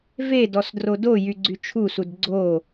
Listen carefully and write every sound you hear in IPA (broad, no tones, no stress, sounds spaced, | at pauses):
v e d ɔ s d r o d o j y ɡ͡ǀ y t͡ʃʰ u s u d ɡ͡ǀ o